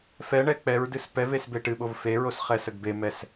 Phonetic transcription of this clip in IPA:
f ɛ ɳ ɛ k͡p ɛ ɹ d ɨ s p ɛ v e s b e ʈ ɨ ɓ o v f e ɹ o s χ ɛ s ə ɡ b e m ɛ s

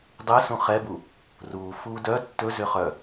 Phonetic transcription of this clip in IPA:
dˤ ɛ s ũ χ ɛ b u | r uː f uː d œ tː ɵ z ʏ χ œ

